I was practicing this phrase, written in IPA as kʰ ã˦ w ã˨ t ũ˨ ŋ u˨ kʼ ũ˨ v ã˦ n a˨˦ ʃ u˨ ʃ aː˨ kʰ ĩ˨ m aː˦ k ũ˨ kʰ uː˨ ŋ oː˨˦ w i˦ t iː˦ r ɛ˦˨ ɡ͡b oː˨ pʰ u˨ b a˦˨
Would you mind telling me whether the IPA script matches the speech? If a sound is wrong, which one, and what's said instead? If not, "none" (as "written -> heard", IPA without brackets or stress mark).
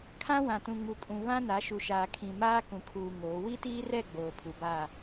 none